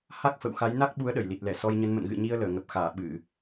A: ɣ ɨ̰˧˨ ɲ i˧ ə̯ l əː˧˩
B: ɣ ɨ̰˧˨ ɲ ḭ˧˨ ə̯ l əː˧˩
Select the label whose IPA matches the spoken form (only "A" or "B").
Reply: A